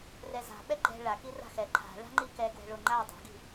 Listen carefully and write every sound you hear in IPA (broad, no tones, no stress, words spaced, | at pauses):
rɛza̤ ɓɛɡ͡ǃɛ̤ ɭaki ra̤xɛ ǃʰa̤ ɭa̤ŋ͡ǃikɛ ɡwɛ̤ɭoŋ͡ǃa dˤo̤ɡi̤